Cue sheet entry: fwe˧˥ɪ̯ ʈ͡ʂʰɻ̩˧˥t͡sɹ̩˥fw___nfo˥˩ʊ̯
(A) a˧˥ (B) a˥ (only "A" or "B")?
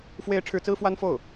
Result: B